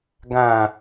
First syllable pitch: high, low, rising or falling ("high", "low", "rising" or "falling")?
low